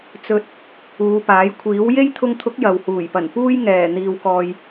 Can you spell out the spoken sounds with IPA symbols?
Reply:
t͡s ɵ˨ t̚ | uː˨˧ p aː˨˥ j kʷʰ iː˨˥ w j e˥ j t̪ʰ ʊ˧ ŋ t̪ʰ ʊ˨˥ k̚ j ɐ˨ w h uː˨˩ j p ɐ˨˩ n p uː˥ j ŋ ɛː˨˩ n̪ iː˨ w k ɔː˨ j

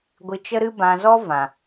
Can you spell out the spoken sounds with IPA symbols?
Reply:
ɡʷ ɨ˧ t͡ʃ ə˦ ɾ ɨ˦ b ã˧ z ɔ˦ v ã˨

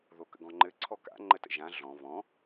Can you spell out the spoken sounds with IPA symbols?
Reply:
ð o k ə̰ ɡ ɔ̃ ŋ͡ǃ ɘ ǀʰ ɔ k a̰ ŋ͡ǃ ə t ə̰ ʒ ã ɮ ɔ̃ β ɔ̃

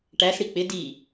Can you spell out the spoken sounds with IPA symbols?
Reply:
ʈ æ s ɽ i k͡p ɪ d i

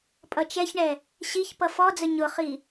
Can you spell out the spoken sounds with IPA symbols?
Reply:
pʼ ʌ t͡ʃ ɛ ç ɳ ɛ | ɕ i ç p ʌ f ɔ d͡z ə ɲ ʊ χ i

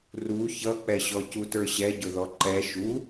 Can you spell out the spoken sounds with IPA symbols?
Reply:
r u ç ʌ k͡p ɛ ɕ ɔ c u t ə˞ ɕ ɛ ɟ ʊ ð ɔ ǃ ɛ ʃ u

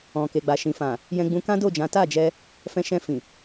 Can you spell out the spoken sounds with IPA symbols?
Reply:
ɔ̃˨ k e˨ ɡ͡b a˨ ʃ ĩ˨ f ã˨ | j ɛ̃˧ ɡ͡b ũ˧ k ã˦ d o˦˨ d͡ʒ ã˨˦ t a˦˨ d͡ʒ ɛ˧ | f ɛ̃˧ ʃ ɛ̃˧ f ĩ˨

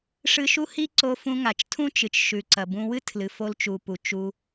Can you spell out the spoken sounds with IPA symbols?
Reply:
ʂ ɨ˧ ʃ u˥ h i˥ ǀ o˧ f ũ˧ ŋ a˩ t͡ʃ tʰ ũ˥ t͡ʃ ɨ˩ t͡ʃ ʃ ʉ˩ ǀ ɐ˩ b ũ˧ w ɨ˥ tʰ l ɨ˩ f o˧ l t͡ʃ u˩ p u˩ t͡ʃ u˧

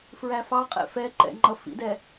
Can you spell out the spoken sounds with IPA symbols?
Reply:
f ɹ æ f ɑ qʼ ɛ̰ f ɛ ǃ ɛ̰ ŋ͡ǃ ʌ f ḭ d ɛ

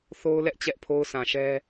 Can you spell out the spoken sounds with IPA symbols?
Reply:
θ o˦ ʊ̯ l ɛ˦ ʔ t͡ɕ ɛ˦ ʔ pʰ o˦ ʊ̯ s ã˨ ʃ ɛ˦

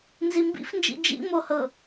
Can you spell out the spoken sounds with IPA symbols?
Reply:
n z i m b ḭ f n d͡ʒ ḭ d͡ʒ ḭ m o h ɤ

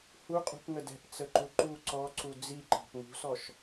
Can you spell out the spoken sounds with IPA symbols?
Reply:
h u qʼ ṳ p ŋ ə d ɛ̤ p t͡s ə ǃ u ǃ u ǀ ɔ ǀ u d͡z i ǃ ɑ̤ p ŋ ṳ s ɔ ʃ

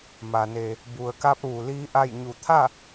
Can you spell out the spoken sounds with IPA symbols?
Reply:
m a˩ n e˩ | b u˩ ə̯ k a˧ p̚ ʋ u˩ l iː˧˥ ʔ a˥˨ j ɲ u˧˩ t̪ʰ a˥˨

